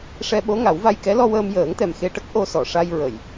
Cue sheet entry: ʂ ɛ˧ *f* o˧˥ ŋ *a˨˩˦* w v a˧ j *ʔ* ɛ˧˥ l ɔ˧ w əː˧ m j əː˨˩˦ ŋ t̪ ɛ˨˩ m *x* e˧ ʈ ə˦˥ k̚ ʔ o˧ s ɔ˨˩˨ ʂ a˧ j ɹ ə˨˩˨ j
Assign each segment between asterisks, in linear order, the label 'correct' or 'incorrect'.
incorrect: ɓ, correct, incorrect: k, correct

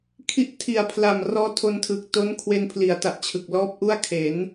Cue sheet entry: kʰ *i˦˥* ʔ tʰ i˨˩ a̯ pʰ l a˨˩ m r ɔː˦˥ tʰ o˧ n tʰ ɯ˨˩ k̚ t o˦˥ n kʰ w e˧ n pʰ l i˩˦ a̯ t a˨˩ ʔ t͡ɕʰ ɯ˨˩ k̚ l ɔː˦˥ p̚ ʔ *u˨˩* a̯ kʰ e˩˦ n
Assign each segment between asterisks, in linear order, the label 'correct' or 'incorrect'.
correct, incorrect: u˥˩

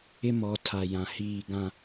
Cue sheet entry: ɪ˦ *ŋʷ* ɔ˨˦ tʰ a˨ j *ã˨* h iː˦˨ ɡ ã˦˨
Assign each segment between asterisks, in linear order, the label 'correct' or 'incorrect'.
incorrect: m, correct

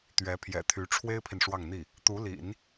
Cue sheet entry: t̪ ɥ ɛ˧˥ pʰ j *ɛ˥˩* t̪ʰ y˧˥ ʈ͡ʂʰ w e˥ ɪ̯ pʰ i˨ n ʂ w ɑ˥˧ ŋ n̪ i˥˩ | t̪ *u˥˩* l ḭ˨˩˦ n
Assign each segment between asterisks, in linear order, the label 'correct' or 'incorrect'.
incorrect: ɛ̰˨˩, incorrect: u˧˥

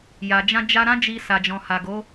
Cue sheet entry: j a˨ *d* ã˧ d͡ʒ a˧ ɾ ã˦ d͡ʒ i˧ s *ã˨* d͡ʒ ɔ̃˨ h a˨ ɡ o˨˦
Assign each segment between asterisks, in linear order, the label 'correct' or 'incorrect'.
incorrect: d͡ʒ, incorrect: a˨

